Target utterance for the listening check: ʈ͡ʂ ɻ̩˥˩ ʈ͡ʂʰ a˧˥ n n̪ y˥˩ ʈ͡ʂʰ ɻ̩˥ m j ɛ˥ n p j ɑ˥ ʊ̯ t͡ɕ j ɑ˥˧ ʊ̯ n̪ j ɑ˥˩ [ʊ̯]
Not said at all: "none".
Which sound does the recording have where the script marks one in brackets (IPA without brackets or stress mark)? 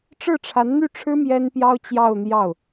ʊ̯